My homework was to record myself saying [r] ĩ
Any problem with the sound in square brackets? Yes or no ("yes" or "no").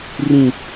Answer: no